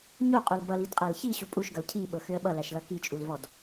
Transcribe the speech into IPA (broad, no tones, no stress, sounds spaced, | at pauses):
ɲ o qʼ o l b ʌ l i d qʼ æ l ç i ɕ u pʼ u ʃ ɡ ʌ l cʰ i ɓ ɤ x ø ə̯ ɓ ʌ l æ ʃ l ʌ k i t͡ʃʼ u l v ɔ d